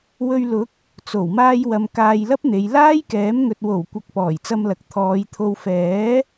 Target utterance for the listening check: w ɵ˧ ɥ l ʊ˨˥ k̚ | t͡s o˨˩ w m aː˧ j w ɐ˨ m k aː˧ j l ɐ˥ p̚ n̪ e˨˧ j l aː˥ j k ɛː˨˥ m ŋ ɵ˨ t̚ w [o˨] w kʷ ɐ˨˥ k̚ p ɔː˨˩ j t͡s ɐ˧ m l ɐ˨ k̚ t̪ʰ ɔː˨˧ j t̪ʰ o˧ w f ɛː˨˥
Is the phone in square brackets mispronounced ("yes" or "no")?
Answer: yes